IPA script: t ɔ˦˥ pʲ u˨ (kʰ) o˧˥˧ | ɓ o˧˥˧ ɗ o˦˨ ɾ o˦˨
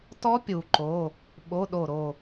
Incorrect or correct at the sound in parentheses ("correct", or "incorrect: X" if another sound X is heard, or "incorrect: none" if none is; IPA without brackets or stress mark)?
incorrect: ǃ